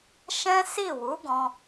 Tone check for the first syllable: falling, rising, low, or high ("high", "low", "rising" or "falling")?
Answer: high